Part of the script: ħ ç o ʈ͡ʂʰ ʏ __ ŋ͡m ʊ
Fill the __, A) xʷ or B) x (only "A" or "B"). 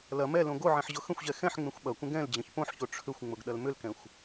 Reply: A